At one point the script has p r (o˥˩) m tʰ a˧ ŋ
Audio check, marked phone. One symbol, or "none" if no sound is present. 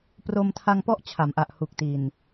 o˧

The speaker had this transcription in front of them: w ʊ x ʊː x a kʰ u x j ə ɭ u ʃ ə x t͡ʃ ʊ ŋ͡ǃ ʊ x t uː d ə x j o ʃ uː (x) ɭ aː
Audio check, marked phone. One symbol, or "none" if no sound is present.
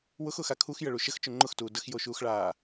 x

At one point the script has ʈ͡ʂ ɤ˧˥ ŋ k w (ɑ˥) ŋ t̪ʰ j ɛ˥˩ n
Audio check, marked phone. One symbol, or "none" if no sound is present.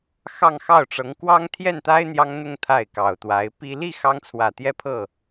ɑ˥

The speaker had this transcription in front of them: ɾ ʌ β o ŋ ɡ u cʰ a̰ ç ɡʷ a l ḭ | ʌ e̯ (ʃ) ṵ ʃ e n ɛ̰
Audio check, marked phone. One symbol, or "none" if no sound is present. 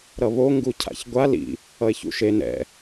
ç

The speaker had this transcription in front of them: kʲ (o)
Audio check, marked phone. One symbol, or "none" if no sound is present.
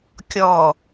ɔ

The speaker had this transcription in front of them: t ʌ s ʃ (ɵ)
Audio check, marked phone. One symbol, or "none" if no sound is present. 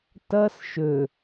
ɵ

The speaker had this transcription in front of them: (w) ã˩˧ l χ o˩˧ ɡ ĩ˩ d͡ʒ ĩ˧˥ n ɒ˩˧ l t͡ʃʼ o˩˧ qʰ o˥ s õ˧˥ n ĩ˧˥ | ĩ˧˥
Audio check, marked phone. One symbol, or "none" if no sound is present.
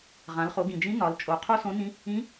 ʁ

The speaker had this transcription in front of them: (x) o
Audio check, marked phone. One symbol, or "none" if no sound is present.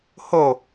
h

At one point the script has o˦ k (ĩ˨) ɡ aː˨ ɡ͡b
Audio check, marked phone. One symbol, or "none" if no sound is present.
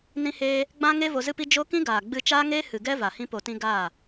ĩ˦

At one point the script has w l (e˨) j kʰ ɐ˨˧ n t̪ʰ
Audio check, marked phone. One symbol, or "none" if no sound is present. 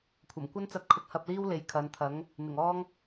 e˨˥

